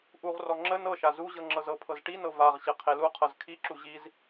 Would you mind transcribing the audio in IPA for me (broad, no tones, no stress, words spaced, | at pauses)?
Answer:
ʔuʁrɔ ŋ͡ǁə nɤʃa zuʑɤ ŋ͡ǁɤzɤpʰɤz ʈinɤ vaʁɕe qʰeluqʰɤz kʰiǁu ʑiz